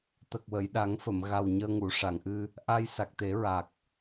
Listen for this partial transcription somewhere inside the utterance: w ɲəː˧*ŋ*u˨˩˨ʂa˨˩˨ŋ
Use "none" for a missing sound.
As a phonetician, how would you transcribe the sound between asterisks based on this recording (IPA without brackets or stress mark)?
ŋ